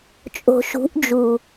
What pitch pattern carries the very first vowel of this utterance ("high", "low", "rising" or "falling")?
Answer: low